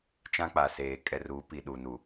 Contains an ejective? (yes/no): yes